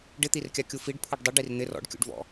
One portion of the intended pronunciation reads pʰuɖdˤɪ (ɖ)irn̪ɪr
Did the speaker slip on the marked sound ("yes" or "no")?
no